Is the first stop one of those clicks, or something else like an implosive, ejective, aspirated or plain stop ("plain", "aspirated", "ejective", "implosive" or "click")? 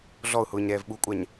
implosive